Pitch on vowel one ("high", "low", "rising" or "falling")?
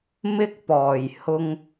high